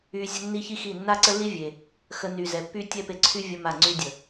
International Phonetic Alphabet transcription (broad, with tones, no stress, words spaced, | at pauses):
y˧ zʲə˦ nːi˦çi˦xi˦˨ nːa˦ǀə˦lːi˦ vʲe˨ | xə˧ ny˨zɛ˨pːy˦ tʲɛ˦pe˧ǀʰy˦ vʲə˦ma˦˨ ŋ͡ǀy˧dʲə˨